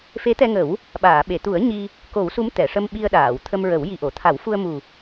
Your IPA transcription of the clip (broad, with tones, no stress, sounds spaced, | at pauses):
f e˧˥ t̪ ɛ˧ ŋ ə˨˩˦ w | ɓ aː˨˩˨ ɓ e˨˩˨ t̪ u˨˩˦ ə̯ ɲ i˧ | k o˨˩˦ w s u˧˥ m t̪ ɛ˨˩˨ ʂ ə˧ m ɓ i˧ ə̯ ɗ aː˨˩˨ w t̪ʰ ə˧ m ɹ ə˨˩˦ w j i˨˩ ʔ o˨˩˨ t̪ʰ a˨˩˦ w f u˧ ə̯ m u˨˩